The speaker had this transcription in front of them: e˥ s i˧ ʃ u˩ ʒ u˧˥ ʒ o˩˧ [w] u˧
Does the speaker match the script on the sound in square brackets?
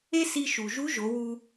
yes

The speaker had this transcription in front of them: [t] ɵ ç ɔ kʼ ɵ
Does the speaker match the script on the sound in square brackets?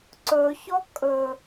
no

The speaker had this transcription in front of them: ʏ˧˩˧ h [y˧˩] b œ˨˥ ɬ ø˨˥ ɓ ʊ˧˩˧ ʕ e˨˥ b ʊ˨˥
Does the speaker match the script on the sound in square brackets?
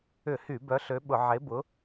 no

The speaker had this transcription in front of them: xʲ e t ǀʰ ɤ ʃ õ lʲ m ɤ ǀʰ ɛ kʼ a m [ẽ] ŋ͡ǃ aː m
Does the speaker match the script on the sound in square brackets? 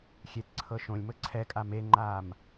no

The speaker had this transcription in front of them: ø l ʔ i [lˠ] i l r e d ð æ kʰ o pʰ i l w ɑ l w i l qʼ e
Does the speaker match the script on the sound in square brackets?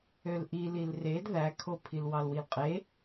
no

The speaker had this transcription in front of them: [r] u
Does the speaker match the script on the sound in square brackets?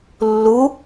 no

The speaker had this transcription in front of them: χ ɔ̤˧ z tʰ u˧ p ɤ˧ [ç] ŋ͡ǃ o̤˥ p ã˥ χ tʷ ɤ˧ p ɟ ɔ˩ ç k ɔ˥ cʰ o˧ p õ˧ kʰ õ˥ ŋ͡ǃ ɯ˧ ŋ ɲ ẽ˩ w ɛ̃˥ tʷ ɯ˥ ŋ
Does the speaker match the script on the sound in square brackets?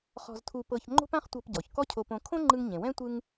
yes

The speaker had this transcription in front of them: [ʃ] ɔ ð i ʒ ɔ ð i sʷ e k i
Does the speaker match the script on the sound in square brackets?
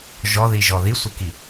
no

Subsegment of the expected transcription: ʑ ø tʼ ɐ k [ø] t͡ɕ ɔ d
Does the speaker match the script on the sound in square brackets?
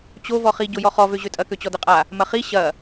yes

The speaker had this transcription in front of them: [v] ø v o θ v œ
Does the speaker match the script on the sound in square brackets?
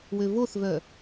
no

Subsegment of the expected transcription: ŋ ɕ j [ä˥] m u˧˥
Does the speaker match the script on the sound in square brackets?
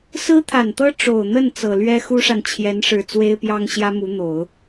yes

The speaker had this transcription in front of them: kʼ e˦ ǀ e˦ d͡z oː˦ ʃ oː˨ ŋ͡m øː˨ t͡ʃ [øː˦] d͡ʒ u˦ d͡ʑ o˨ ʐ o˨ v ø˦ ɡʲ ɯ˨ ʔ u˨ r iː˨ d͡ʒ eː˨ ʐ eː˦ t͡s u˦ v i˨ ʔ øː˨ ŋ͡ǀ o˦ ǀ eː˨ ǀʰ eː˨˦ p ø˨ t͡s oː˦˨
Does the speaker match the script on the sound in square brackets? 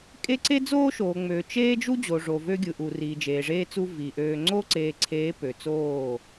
no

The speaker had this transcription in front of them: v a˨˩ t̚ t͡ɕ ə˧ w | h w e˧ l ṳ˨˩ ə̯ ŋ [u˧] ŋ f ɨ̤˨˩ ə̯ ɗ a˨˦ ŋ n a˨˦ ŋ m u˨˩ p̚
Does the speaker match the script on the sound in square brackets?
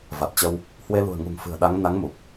no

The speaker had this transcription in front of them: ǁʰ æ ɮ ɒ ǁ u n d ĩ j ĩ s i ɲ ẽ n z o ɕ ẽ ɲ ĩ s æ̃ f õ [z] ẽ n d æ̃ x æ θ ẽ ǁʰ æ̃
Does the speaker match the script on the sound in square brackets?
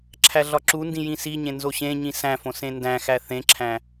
no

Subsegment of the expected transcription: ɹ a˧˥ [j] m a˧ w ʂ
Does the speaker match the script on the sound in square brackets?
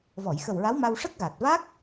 no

